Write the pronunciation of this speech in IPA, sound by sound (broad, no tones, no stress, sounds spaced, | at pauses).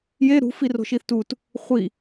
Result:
j e ɾ ṳ f i r o̤ ʃ i θ t u t | χʷ i